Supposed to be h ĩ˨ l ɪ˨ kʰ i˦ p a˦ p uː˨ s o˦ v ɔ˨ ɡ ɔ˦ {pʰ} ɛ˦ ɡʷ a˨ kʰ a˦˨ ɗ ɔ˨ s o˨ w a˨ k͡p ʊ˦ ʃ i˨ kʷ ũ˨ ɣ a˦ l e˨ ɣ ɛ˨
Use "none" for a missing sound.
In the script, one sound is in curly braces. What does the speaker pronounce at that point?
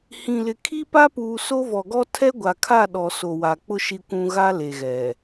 tʰ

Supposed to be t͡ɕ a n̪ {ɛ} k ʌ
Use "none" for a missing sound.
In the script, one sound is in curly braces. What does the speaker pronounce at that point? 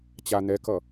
ɛ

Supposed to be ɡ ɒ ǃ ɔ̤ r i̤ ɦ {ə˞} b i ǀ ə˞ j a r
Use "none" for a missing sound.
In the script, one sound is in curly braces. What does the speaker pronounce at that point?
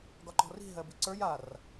ɜ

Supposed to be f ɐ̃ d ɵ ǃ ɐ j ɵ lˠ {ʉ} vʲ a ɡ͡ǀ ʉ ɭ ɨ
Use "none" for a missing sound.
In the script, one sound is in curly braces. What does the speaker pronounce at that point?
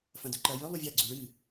u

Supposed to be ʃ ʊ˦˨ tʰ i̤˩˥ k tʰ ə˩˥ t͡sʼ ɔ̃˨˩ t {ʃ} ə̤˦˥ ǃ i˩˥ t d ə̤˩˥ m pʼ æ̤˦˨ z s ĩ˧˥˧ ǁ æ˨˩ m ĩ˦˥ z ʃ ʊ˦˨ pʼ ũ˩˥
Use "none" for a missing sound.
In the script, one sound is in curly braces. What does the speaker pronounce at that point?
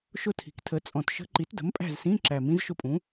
ʃ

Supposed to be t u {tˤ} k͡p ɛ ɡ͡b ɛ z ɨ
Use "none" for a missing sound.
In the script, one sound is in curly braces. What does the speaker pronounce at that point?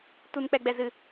n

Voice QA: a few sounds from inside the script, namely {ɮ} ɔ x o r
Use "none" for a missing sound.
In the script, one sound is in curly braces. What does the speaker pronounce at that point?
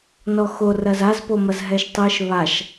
n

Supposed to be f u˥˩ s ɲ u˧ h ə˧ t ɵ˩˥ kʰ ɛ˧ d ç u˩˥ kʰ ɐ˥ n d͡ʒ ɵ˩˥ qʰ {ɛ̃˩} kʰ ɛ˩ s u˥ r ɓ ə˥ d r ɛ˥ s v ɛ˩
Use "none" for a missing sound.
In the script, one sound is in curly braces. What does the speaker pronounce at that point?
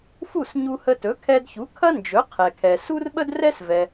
ɛ˩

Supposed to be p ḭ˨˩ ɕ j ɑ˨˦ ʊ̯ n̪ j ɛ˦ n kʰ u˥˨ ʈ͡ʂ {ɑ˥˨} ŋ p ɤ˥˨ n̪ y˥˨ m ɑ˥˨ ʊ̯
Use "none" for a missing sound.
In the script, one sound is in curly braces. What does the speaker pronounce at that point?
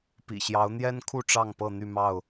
ɑ˥˨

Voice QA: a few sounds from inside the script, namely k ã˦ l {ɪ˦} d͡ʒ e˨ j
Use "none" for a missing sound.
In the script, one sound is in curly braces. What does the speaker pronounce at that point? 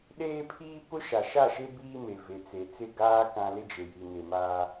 ɪ˦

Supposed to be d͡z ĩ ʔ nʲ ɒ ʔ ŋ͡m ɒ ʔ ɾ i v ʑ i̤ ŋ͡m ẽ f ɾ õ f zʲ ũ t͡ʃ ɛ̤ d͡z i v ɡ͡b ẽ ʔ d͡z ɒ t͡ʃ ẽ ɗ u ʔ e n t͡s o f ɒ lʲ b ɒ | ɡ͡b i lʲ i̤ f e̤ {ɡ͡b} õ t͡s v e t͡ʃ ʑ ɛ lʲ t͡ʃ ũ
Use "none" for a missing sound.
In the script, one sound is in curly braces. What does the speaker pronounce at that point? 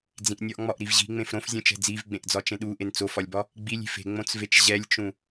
ŋ͡m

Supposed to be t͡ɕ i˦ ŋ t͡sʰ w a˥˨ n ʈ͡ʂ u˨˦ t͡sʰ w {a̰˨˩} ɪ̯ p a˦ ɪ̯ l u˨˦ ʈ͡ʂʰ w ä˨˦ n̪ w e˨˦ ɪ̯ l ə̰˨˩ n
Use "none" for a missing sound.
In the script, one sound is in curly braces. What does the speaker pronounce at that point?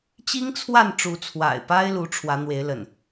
a̰˨˩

